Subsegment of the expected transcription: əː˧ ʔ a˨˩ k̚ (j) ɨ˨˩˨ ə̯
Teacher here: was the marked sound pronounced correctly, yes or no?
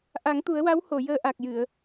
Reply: yes